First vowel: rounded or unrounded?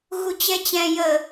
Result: rounded